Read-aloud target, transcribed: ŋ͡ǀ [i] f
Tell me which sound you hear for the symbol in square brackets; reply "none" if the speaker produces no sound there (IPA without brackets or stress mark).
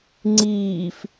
iː